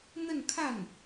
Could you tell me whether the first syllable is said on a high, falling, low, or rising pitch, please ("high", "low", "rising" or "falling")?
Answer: falling